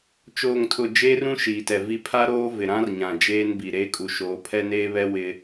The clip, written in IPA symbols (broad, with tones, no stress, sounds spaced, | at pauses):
t͡ʃ oː˨ ŋ tʰ ʊ˨ d͡ʒ eː˦ r ũ˦ ʃ iː˨ t ɛ˨ v i˨ pʰ a˦ ɾ oː˦ v ɪ˨ ɾ ã˦ r ɲ ã˨ d͡ʒ eː˦ n b i˨ ɾ eː˦ kʼ u˨ ʃ oː˨˦ pʰ ɛ˦ n eː˦ β ɛ˦ w ɪ˦